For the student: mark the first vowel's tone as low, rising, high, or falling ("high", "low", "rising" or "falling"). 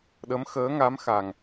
rising